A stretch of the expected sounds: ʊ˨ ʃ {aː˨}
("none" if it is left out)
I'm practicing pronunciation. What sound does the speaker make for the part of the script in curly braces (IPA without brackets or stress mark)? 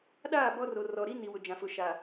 aː˨